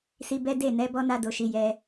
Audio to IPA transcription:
s i˧ b ɛ˦ d e˦˨ n ɛ˨˦ b ɔ˦ n a˦ d o˧ ʃ i˧ j ɛ˧

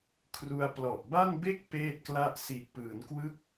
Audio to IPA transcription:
kʰ r u˧ a̯ p l ɔ˨˩ ʔ b a˥˩ n b e˥˩ k̚ p eː˥˩ t̚ k l a˥˩ ʔ s i˨˩ ʔ p ɯː˩˦ n k w ɯ˦˥ k̚

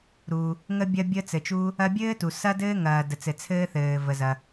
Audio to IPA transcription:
ɾ u˩ | ŋ ə˥ bʲ ɐ˥ bʲ ə˥ t͡s ɘ˩ t͡ʃ u˥ | ɐ˥ bʲ ɘː˥ t u˩ s ɐ˥ d ɘː˥ ŋ ɐː˩ d ə˩ t͡s ɘ˩ t͡sʰ ɘː˥ θ ɘː˩ v ə˩ z ɐ˩

